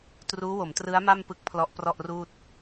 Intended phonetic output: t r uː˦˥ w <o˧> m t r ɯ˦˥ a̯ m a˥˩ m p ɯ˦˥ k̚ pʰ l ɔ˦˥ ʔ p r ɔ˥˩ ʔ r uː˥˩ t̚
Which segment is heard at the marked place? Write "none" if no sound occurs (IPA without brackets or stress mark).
o˩˦